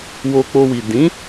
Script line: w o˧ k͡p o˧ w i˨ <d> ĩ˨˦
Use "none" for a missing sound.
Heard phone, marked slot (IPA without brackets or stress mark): d